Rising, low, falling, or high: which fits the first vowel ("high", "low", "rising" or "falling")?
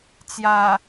low